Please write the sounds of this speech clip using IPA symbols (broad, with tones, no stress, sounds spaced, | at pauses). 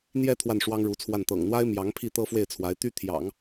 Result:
n̪ j ɛ˥˧ t̪ʰ w a˥˩ n ʂ w ɑ˥ ŋ ɻ u˧˥ t͡sʰ w a˥˩ n t̪ ɤ̰˨˩ ŋ n̪ w a˥ ɪ̯ m j ɑ˧˥ ŋ pʰ i˥˩ t̪ ɤ˥ f w e˥˩ ɪ̯ t͡sʰ w a˧˥ ɪ̯ t̪ y˥ t̪ʰ j ɑ̰˨˩˦ ŋ